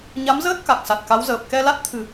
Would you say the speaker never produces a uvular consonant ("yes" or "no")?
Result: yes